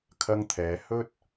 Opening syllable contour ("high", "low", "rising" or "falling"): high